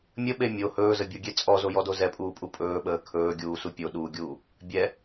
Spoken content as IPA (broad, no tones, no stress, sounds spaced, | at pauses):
mʲ ə ɓ e mʲ o h ɵː z ə bʲ o ɡʲ e t͡sʼ ɔ z o j ɔ d o z ɛ pʼ uː pʼ u pʼ ɵː ɓ əː kʰ ɵː ɡʲ uː s u pʲ o ɗ uː ɡʲ uː | bʲ ɛ